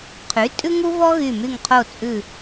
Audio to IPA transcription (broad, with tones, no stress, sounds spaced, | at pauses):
qʰ y˩˥ tʼ ʉ˥ ŋ u˥ v ɔ˥ ɣ y˧˩ m y˧˩ ŋ qʰ o˧˩ t͡sʼ ʉ˧˩